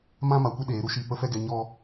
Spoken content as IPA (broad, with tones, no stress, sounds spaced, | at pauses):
m ã˦ m a˨ kʷ ə˦ ɗ eː˨˦ ɾ u˦ ʃ i˦˨ p ə˦ f ɛ˦ ɡ ɛ˧ ɲ ɔ˦